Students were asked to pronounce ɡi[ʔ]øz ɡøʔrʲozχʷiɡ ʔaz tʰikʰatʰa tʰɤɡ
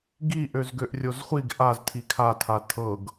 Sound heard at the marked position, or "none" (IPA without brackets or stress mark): ʔ